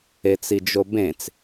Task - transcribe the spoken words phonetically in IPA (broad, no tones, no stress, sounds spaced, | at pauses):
e t͡s i d͡ʒ o b ẽ t͡s